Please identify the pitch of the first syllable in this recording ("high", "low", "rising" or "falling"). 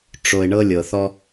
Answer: low